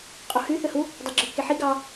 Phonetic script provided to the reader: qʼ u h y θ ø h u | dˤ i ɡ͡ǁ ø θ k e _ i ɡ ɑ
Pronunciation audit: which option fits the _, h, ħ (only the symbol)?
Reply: ħ